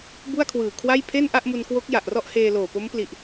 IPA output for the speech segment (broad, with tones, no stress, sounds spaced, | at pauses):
b u˥˩ a̯ kʰ w ɯː˨˩ kʰ w a˥˩ j pʰ e˥˩ n ʔ a˥˩ ʔ m u˧ n k w o˦˥ k̚ j a˨˩ ʔ r ɔ˥˩ ʔ h eː˧ l oː˨˩ p o˦˥ m p l i˨˩ ʔ